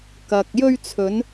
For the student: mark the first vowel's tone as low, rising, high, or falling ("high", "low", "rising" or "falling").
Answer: low